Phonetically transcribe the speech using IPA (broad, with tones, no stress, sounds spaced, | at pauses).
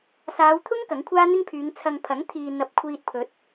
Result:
s aː˨˧ w t̪ʰ ʊ˥ ŋ k ɐ˨˥ ŋ kʷʰ aː˥ n̪ ɪ˥ ŋ pʰ yː˨˧ ŋ t͡sʰ ɐ˧ ŋ pʰ ɐ˨˥ ŋ t̪ʰ iː˨ n̪ ɐ˨˥ p̚ kʷʰ iː˧ t̚ pʰ ɵ˨˥ t̚